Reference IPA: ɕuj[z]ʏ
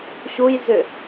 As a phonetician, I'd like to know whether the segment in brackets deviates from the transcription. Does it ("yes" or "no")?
no